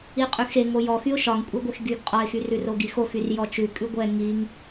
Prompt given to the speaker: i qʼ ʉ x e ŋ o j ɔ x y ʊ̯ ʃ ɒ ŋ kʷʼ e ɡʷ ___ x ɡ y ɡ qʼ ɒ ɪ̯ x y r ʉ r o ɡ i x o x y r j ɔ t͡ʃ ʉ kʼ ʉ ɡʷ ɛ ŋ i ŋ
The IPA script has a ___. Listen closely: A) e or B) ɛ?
A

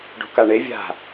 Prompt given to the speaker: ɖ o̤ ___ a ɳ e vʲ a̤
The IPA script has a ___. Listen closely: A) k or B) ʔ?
A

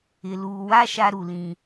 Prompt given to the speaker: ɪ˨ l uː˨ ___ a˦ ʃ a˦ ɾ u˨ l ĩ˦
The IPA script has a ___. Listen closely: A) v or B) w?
B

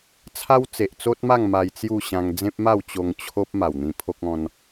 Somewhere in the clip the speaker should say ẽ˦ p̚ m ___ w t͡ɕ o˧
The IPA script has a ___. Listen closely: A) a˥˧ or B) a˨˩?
A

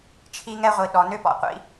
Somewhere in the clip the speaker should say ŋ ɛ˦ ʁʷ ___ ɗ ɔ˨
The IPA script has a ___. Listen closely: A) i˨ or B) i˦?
A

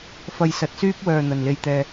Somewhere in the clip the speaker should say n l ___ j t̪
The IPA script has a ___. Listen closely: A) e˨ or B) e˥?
A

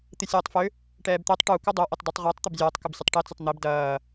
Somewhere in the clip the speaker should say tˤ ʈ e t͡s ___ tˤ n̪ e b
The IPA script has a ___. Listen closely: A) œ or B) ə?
B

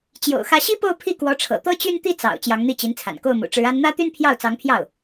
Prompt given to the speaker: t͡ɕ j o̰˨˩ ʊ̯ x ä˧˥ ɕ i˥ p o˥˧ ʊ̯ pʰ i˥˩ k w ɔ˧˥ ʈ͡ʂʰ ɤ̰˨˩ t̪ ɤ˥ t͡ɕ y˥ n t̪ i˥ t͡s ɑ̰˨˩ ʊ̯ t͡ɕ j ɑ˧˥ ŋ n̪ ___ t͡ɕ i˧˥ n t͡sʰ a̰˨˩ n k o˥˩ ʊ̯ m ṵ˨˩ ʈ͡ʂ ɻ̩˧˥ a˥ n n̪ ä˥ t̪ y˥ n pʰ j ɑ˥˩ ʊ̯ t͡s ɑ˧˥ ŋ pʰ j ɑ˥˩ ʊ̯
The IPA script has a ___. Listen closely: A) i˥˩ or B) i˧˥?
A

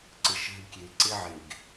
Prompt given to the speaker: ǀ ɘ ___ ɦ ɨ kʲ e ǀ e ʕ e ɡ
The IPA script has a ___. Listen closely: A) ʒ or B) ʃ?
B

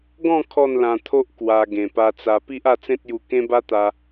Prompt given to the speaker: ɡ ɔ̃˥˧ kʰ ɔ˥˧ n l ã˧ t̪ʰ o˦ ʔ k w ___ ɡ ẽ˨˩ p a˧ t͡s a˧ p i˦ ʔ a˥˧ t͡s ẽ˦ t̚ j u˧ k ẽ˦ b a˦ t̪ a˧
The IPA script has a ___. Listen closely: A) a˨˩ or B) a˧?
B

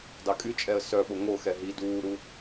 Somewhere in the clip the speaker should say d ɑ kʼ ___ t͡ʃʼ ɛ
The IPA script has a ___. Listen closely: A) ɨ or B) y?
B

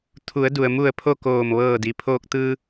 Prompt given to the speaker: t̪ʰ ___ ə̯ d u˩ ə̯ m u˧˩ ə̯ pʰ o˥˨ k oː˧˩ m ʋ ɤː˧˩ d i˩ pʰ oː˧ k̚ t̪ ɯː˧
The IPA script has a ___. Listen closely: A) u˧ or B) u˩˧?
B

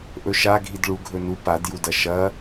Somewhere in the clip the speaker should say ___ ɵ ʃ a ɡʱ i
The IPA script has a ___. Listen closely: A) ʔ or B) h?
A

